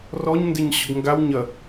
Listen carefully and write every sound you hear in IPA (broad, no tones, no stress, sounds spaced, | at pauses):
r ɔ ɲ n d ɪ ɲ ɕ ʊ ɡ ŋ ɡ a w ɲ ɐ